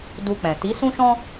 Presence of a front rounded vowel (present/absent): absent